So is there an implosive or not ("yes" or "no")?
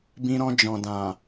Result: no